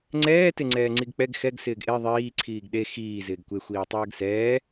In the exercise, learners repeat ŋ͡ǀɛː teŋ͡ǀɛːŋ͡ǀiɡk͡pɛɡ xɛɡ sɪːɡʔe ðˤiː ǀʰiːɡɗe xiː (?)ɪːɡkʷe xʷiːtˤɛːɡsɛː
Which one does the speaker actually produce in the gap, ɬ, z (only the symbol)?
z